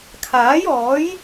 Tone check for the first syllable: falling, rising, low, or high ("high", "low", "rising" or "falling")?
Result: rising